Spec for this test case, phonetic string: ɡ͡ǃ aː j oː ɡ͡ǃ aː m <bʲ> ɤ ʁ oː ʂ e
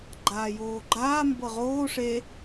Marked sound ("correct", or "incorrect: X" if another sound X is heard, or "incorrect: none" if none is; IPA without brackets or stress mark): incorrect: b